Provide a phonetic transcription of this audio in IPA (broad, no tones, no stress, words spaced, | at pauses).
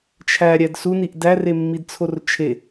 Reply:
t͡ʃʰæɾʲæd suniʔ dæremːidt͡sʰor t͡ʃʰe